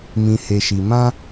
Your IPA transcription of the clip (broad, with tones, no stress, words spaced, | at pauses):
mĩ˨he˨ʃi˨ mã˧